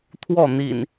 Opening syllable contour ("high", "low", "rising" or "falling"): falling